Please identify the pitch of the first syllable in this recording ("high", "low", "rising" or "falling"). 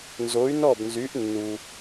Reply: rising